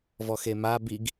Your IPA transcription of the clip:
v ɔ x e m a b i ɡ

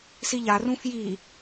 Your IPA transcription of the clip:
s i ʎ a r ũ f j i

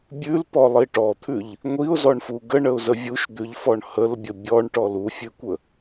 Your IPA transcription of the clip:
bʲ ʉ l p ɔ lˠ i ʈ ɔ t̪ʰ ʉ ʎ | ŋʷ i ʊ̯ z ɔ ɳ f u ɡ ə ɳ ə ʊ̯ z ə vʲ u ʃ d̪ ʉ ʎ f ɔ ɳ h ə l bʲ ə bʲ ɔ ɳ ʈ ɔ l u fʲ ʉ kʷ ə

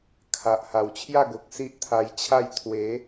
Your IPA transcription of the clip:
kʰ a˨ ʔ h a˨˩ w t͡ɕʰ j a˥˧ ɡ o˨ k̚ s i˦ ʔ t̪ʰ a˧ j t͡ɕʰ a˥˧ j t̪ʰ w e˨˦

